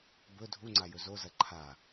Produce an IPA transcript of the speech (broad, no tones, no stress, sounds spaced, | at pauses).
b ɵ dʱ u ŋ͡ǀ a j ɵ z o z ɐ ǃʰ a